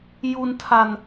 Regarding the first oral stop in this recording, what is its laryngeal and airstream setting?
aspirated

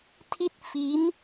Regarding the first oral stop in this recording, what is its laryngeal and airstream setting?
aspirated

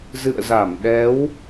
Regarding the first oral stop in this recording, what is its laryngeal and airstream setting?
implosive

